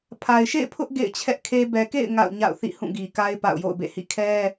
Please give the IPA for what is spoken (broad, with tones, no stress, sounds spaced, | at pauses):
pʰ a˨ ɪ̯ ʃ ḛ˦˨ ɪ̯ pʰ ʊ˦ ʔ ɡ ḛ˦˨ ɪ̯ t͡ɕʰ ɛ˦ ʔ kʰ e˦ b ɛ˨ k ḛ˦˨ ɪ̯ ŋ a̰˦˨ ʊ̯ ɲ a̰˦˨ ʊ̯ θ ḭ˦˨ h ũ˦˨ ɡ i˨ k a˦ ɪ̯ p a̰˦˨ ʊ̯ j o̰˦˨ ʊ̯ b ḛ˦˨ h ḭ˦˨ kʰ ɛ˦